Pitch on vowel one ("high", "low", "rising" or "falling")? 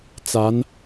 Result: rising